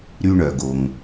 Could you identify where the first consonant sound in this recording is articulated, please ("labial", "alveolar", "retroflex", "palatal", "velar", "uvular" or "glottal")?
alveolar